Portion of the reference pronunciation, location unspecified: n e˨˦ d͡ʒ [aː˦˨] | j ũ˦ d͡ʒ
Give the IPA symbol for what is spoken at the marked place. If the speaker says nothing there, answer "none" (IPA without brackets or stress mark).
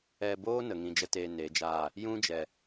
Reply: aː˦˨